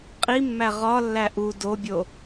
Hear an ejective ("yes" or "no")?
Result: yes